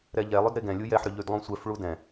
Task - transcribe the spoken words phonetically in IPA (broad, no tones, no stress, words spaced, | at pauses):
ɾɛʎɛlˠʏd ɾeɡɛ̃lʲu jɛħɾʏ ʎydlˠũsʷɛfɭu dɛ̃